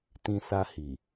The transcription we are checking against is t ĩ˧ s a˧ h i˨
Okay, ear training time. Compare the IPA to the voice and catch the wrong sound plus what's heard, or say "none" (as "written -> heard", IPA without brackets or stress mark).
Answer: none